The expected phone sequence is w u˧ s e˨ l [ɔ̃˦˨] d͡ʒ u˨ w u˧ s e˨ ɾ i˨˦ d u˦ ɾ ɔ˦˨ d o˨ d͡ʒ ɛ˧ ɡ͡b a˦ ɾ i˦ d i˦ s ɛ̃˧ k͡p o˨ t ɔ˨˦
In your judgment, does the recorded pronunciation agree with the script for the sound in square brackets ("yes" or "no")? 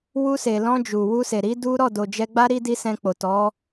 no